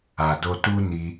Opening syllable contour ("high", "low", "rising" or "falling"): low